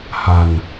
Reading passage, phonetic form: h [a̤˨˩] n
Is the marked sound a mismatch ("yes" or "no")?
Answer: no